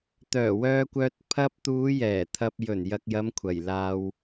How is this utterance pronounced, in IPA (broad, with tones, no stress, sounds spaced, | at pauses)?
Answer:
t̪ œː˨˩ w œː˧ kʷ œː˧ t̚ pʰ ɐ˧ p̚ t̪ uː˨˧ j ɛː˨˩ t̪ʰ ɐ˨ p̚ j ɵ˨˩ n j ɐ˨ k̚ j ɐ˨˧ m kʷʰ ɐ˨˩ j l aː˧ w